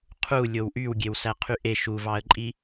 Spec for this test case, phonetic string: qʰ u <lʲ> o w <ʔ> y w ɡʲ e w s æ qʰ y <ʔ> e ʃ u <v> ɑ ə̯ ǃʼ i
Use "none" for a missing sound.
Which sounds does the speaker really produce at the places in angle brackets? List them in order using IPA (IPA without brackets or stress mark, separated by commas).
lʲ, ʔ, ʔ, v